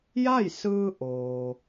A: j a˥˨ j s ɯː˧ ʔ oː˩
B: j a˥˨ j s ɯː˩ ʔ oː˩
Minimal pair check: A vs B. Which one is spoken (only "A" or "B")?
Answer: A